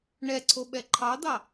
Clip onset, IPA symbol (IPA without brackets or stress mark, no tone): ɳ